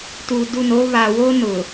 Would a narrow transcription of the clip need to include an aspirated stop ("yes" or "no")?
no